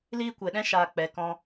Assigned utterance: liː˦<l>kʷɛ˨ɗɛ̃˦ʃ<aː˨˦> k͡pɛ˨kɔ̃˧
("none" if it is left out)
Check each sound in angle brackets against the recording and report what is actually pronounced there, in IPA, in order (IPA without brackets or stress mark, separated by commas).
none, aː˨